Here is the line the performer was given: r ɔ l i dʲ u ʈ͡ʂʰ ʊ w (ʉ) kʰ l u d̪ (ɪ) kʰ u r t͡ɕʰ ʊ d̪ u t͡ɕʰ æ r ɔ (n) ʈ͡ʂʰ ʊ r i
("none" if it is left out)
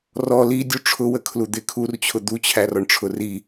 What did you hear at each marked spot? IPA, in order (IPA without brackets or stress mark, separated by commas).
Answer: ə, ɪ, ɳ